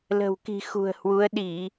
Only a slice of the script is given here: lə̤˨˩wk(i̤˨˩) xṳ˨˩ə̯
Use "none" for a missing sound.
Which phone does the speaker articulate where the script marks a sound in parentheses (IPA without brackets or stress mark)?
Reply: i̤˨˩